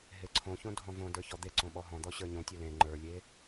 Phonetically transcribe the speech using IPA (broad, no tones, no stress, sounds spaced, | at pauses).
ɦ e ǀʰ õ ç õ dʱ ɔ̃ v õ d ə˞ ç ɔ d̪ e ǀ õ ɓ ɔ ɦ ɔ̃ d̪ ɔ ɕ ə˞ ɲ õ tʲ o l ẽ ŋ͡ǃ ə˞ lʲ e